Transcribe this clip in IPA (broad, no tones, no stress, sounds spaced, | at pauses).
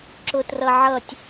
ǁ ʊ t r ʌ ʕ ʌ tʲ